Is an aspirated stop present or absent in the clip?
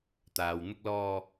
absent